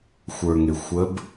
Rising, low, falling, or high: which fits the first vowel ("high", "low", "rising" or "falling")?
low